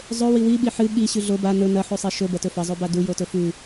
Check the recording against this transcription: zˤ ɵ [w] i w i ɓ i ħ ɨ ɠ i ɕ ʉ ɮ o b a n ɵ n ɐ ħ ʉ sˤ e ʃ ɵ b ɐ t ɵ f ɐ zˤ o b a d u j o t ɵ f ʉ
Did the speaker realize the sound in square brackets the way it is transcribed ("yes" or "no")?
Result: yes